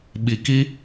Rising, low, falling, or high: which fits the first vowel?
low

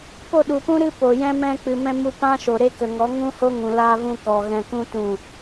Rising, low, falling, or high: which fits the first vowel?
falling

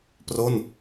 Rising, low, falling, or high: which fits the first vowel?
falling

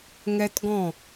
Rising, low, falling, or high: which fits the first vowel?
high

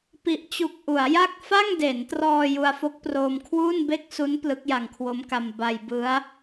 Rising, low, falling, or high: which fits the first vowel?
low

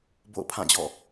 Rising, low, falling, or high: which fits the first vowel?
falling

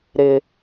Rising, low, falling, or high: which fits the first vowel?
low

